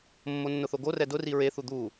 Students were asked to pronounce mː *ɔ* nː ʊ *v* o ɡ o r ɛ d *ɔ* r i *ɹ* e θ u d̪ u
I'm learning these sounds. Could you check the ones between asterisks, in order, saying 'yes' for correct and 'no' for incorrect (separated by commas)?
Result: no, no, no, yes